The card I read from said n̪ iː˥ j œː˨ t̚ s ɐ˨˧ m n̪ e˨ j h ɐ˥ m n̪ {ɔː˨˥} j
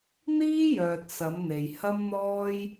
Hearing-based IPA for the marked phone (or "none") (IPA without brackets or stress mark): ɔː˥